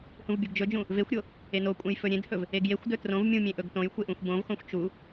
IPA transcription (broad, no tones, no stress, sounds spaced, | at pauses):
h ũ v bʲ u ɡ d͡ʒ ɵ d͡ʒ ũ | v e xʷ ɾʲ o | e n o kʷʼ ẽ j f ɵ ɾʲ ẽ d h ɵ v | e ɡ j e xʷ d ɵ t r õ v mʲ ũ mʲ ẽ ʔ ɵ ɡ t õ j xʷ e ʔ ũ xʷ b õ v x õ xʷ t͡ʃ u